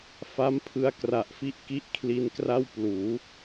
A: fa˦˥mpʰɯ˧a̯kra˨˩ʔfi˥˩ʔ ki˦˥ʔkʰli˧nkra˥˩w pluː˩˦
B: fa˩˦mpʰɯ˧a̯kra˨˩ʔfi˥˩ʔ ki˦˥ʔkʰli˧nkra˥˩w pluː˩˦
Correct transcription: A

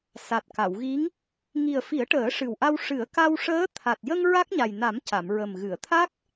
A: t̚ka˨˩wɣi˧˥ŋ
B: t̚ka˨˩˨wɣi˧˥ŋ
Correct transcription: B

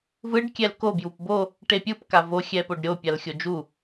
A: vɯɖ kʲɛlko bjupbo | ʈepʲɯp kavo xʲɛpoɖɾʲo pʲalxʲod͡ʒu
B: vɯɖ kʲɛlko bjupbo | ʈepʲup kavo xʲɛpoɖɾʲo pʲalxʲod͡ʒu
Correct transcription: A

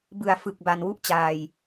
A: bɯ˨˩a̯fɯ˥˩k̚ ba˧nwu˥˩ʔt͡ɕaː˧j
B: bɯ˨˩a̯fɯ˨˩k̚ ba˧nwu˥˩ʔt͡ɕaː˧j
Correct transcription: B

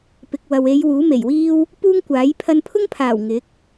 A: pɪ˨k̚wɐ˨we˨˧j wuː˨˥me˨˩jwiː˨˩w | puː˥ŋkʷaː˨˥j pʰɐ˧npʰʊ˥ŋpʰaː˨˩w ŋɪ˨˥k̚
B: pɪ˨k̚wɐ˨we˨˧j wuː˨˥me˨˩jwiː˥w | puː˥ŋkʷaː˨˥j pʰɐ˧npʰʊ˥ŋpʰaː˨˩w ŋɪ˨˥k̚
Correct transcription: B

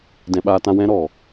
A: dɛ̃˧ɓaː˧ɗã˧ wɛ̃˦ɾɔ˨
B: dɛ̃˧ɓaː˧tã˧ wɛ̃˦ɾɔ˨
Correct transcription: B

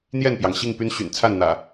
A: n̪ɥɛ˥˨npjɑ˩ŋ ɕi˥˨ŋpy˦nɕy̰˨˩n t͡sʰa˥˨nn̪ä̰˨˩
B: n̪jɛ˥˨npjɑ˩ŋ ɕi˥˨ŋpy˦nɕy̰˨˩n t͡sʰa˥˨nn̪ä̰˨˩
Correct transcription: B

